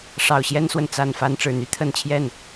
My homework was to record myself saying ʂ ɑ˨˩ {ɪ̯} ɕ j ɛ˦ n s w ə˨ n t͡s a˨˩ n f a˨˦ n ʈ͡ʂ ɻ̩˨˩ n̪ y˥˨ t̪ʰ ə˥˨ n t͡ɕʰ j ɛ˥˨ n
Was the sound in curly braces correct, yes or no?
no